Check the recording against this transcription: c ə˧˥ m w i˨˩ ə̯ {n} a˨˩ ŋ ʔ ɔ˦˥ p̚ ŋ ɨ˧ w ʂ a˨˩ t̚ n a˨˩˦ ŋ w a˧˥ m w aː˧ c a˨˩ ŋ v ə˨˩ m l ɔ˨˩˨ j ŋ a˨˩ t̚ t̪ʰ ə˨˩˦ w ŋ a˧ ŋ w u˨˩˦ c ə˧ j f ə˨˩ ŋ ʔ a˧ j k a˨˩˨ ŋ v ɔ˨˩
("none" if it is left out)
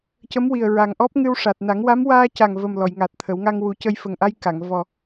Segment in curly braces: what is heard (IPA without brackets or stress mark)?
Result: ɹ